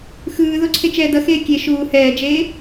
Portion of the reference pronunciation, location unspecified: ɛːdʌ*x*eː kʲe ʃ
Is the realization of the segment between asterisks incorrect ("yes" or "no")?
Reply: no